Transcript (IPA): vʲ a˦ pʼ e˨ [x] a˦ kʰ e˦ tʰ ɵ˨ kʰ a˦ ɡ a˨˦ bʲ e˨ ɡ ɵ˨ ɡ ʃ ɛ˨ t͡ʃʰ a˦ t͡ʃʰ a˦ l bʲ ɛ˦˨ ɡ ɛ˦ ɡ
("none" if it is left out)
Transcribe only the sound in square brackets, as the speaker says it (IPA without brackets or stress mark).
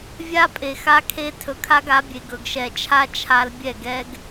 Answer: x